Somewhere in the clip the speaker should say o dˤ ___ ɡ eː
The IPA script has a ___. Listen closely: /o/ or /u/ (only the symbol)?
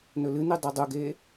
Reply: u